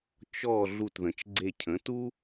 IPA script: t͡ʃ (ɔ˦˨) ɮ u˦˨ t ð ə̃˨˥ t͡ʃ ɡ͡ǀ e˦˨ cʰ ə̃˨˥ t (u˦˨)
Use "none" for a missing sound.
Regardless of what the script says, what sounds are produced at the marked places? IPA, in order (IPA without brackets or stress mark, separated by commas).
ɔ˦˨, u˥